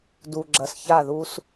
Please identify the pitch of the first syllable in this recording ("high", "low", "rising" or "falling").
low